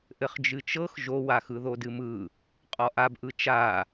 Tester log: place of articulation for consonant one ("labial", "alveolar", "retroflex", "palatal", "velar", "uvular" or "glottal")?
glottal